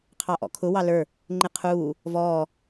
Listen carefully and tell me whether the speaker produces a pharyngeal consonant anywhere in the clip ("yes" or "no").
no